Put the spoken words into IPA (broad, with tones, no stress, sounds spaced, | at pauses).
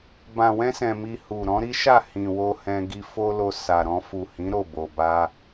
b ã˨ w ɛ̃˧ s ɛ̃˨ m i˨ h u˨ ɾ ɔ̃˨˦ ɾ i˦ ʃ a˦˨ h ĩ˨ w o˧ h ɛ̃˧ ɡ i˧ f o˦ l o˧ s a˨ ɾ ɔ̃˧ f u˨ h ĩ˨˦ ɾ o˦˨ b o˨ b a˧